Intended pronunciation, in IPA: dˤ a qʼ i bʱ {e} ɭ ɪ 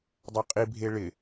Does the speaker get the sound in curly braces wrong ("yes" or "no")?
no